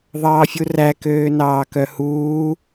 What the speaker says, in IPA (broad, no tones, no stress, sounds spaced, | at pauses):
ðˤ ɑː fʲ u r æ k øː n ɑː k œ h uː